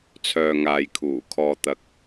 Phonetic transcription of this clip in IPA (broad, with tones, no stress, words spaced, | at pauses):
t͡sʰœː˨ŋaː˨j kʰuː˨˩kʰɔː˧t̪ɐ˧k̚